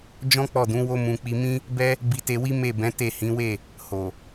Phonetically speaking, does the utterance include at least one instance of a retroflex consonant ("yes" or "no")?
no